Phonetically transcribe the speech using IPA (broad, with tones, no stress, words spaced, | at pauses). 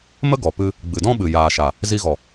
mə˦ ɡɔ˨pɨ˧ | ɡ͡bɨ˨dɔ̃˦ɓɨ˨ jaː˨ʃa˨ | zi˧ɣɔ˨